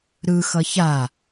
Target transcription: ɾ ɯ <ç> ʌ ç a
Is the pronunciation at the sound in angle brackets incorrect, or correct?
incorrect